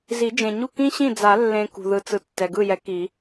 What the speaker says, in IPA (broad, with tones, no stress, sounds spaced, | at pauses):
z i˨˩˦ d͡ʒ ẽ˨ ɲ u˥˩ k ĩ˥ ɕ ĩ˥˩ d͡z a˨˩˦ lː ẽ˨ k ṳ˨ ð ɯ˨ t͡s ɯ˨ tː ɛ˨ ɡ ɯ˥˩ j ɛ˨˥ k i˨˩˦